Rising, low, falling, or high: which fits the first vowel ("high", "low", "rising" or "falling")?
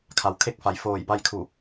low